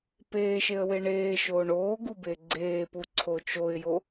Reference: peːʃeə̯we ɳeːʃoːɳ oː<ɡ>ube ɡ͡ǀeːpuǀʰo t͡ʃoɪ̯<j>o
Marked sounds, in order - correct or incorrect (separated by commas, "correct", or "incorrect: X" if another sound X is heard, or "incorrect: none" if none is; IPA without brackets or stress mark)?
correct, correct